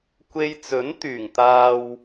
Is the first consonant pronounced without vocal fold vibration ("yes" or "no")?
yes